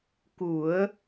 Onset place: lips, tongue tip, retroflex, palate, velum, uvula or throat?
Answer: velum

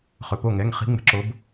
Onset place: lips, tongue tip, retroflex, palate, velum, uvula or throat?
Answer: uvula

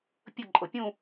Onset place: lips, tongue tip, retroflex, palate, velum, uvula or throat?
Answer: lips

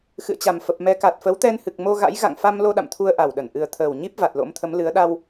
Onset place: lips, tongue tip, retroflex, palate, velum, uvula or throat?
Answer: velum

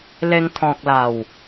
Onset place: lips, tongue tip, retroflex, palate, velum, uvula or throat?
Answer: tongue tip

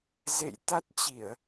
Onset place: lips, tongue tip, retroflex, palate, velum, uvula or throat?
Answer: tongue tip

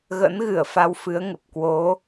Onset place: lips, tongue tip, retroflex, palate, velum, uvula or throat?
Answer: velum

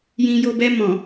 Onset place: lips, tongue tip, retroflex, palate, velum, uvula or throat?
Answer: palate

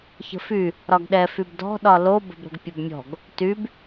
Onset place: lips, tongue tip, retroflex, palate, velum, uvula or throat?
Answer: palate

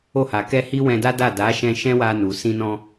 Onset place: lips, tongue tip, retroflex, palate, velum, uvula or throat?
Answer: throat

